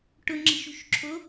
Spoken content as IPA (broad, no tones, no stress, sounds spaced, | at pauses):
ʈ ʊ ŋ͡ǁ i̤ ʃ ṳ ʃ ǁʰ o